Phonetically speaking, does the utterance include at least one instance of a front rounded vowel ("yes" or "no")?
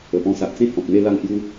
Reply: no